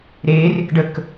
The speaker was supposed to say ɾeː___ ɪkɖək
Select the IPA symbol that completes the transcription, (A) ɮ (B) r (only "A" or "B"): B